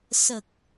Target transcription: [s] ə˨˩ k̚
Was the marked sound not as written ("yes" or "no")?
no